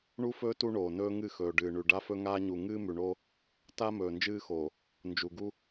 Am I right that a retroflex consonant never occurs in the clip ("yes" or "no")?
no